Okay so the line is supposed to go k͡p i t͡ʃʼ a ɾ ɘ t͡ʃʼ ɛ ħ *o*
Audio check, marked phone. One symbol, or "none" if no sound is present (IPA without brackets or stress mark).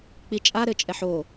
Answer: o